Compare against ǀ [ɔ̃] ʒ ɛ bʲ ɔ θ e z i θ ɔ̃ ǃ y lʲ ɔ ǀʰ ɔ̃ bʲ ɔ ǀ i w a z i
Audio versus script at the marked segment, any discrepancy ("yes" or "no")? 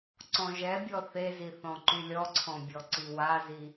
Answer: no